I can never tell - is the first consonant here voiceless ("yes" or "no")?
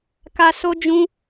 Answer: yes